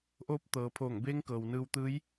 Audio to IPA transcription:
ʔ oː˧˥ p̚ t̪ ɤː˩˧ pʰ oː˧˩ ŋ b eː˧˥ ŋ k ɤː˩ w n ɯː˧ w t̪ ɯː˧˥ j

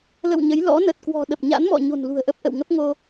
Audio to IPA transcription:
l ə̰˧˨ w ɲ ə˨˦ j l ɔ̰˧˥ n ə˨˩ t̚ k w ɔ̤˨˩ ɗ ə˨˩ p̚ ɲ a̰˧˥ n m ɔ̰˧˨ ɲ o̤˨˩ n l ṳ˨˩ ə̯ ʔ ə˦˥ p̚ ʔ ə̰˧˨ w ŋ ə˦˥ p̚ ŋ o˧

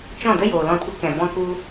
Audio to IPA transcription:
t͡ʃ ɔ̃˦˨ d ə˦ j oː˨ l ɔ̃˧ t ɡʷ ə˦ k ɛ̃˨ b ɔ̃˧ k u˧

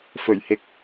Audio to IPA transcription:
f ɵ˨˩ ɥ h ɪ˨ k̚

